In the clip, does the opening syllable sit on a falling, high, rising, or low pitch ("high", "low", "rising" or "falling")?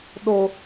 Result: low